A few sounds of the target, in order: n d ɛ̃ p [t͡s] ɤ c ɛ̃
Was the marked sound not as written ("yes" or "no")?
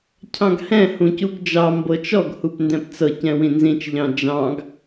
no